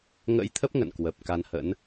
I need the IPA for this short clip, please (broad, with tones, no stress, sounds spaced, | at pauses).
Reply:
ŋ ə̰˧˥ j t̪ʰ ə˦˥ p̚ ŋ ə̰˧˨ n k w ə˨˩ p̚ k a˧ n h ə̰˧˥ n